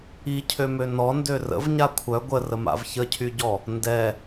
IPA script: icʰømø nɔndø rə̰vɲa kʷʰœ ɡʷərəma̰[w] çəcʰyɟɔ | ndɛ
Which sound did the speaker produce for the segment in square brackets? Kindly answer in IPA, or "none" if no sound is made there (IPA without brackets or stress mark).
v